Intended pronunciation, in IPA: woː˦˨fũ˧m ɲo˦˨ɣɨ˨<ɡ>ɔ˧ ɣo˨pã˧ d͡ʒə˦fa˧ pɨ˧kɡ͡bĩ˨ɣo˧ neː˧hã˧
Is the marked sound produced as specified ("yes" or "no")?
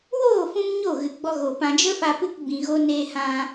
no